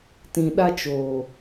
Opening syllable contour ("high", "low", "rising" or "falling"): low